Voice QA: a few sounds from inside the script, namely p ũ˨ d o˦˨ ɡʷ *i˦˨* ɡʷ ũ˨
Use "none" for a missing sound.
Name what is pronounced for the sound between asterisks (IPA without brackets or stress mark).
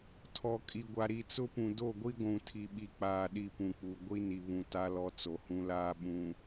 i˦